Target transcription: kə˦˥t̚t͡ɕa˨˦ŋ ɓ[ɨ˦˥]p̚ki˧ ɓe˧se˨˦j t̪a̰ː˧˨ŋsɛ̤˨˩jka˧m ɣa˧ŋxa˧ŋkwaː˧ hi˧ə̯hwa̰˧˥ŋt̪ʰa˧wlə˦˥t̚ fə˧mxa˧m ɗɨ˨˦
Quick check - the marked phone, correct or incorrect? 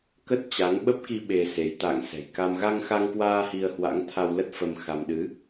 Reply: incorrect: ə˦˥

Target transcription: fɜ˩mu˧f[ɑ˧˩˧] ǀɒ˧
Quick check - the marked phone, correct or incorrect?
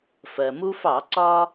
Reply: correct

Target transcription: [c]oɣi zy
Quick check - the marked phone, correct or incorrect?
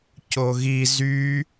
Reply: correct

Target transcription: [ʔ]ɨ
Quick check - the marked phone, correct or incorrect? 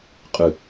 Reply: incorrect: qʼ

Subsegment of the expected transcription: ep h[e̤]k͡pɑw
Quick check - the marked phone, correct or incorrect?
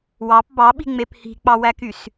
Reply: incorrect: i̤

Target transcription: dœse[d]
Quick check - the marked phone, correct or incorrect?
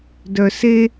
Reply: incorrect: none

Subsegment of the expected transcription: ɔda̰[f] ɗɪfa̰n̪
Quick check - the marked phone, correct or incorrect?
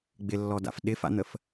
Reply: correct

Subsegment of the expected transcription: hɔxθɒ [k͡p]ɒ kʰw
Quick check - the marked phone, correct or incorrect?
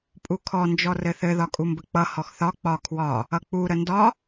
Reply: correct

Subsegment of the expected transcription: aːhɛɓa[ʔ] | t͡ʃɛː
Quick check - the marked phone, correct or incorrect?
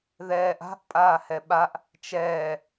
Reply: correct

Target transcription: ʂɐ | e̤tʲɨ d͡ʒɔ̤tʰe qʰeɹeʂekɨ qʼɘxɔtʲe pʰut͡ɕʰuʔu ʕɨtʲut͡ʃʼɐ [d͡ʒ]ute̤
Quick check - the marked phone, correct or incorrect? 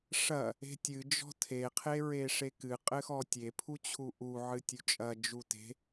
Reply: correct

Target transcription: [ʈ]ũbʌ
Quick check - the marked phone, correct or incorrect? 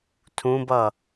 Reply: incorrect: tʰ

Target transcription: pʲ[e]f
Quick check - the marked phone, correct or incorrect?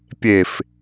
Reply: correct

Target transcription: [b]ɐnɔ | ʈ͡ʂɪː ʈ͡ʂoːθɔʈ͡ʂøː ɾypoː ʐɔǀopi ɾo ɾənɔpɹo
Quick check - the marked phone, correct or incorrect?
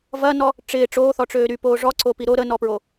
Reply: incorrect: v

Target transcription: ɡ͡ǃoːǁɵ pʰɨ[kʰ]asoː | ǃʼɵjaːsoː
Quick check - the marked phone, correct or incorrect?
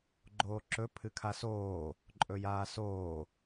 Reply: correct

